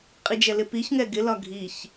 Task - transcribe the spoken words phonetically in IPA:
qʼ i d͡ʒ ɛ l ɪ p i ç ŋ ɛ ɡ ɪ l ɒ ɡʱ i ç

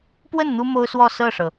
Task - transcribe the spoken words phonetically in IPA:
p w ə˥˩ n n̪ u˥ m o˥ ʊ̯ s w ɔ˥˧ s ɤ˥˩ ʂ ɤ˩

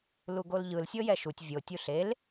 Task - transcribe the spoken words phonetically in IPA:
l u ɡ o l ʎ ɯ l sʲ ɤ j ɛ ʃ u tʲ vʲ o tʲ u ɬ e l

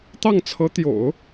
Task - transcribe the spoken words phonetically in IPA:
t̪ ɑ˥˩ ŋ t͡sʰ ɤ˧˥ t̪ j o̰˨˩˦ ʊ̯

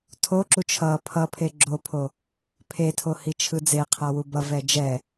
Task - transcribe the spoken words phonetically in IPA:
tʰ o ǁ u t͡ʃʰ ʌ pʰ ʌ pʰ e ɡ͡ǁ o pʰ o | pʰ e tʰ o h i t͡ʃʰ ɯ d͡z e qʰ a w u b ʌ v ɛ d͡ʒ ɛ

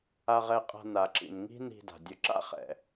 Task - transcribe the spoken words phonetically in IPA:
a˧ ʁ ɛ˧ qʼ a̤˧ n a˩ ǁ ḭ˩ n ŋ i̤˥ n i̤˧ d a̤˩ dʲ ʊ˧ ǁ a̰˥ χ ɛ̰˩

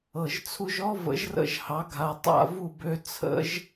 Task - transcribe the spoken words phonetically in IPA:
ɤ˩ ʒ t͡sʰ u˧ ʒ ɔ˥ v ə̰˩˥ ʒ r ə̰˥˩ ʒ h ɑ˩˥ ɡʱ a˩ tˤ a̰˥˩ v u˥˩ b ø˧ t͡sʰ ə̰˥ ʒ

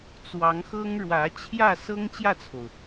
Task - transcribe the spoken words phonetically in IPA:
t͡s w ɑ˧˥ ŋ x ɤ˥ ŋ ɻ w ä˧˥ t͡ɕʰ j ä˥˩ s ɤ˥ ŋ t͡ɕ j ä˥˩ t͡sʰ o˩ ʊ̯

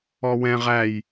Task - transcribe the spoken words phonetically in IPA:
ɔ w ɛ̃ ʁ æ j

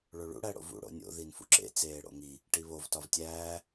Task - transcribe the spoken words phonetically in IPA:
ɭ o ɭ ṵ ɽ æ ɽ o̰ v ṵ ɽ o̰ nʲ o̰ ð i n f ṵ ǁ ḛ t͡s eː ɽ o̰ ŋ i | ʈ i β o v t ɒ v tʲ æː

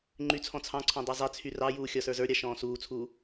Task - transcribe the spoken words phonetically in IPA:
ŋ͡ǃ y t͡sʰ ɔ̃ t͡sʰ ɑ̃ ǀʰ ɔ̃ dˤ ɛ zˤ ɛ t͡sʰ y r ɑ j uː xʲ ɒ s ə˞ z ə˞ ɾʲ ɑ ʃ ɔ̃ː s uː t͡sʰ uː

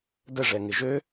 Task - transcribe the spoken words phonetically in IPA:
d ə ʐ ɛ ŋ ɪ ʒ ø

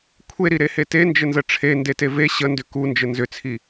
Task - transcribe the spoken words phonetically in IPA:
kʷʰ e ɾ i ɾ e h e t e n d͡ʒ ə n z ə ʈ͡ʂʰ e n d e t e v e ɕ ə n d ʏ k u n d͡ʒ ə n z ʏ t͡sʰ i

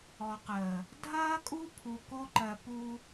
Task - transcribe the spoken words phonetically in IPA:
ɔ˨ q əː˨ | dʱ ɐː˦ kʼ u˦ pʰ u˦ k o˦ ǃ ɜ˨ p u˦

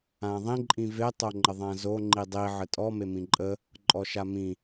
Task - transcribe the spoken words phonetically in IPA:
ã ðˤ ĩ ǃʼ ĩ v e tˤ o ŋ͡ǃ ə ðˤ ã z o ŋ͡ǃ i dˤ i ʕ ə tʼ ɔ m e m ĩ ǃʼ ə | ǃʼ ɔ ʃ a m ĩ

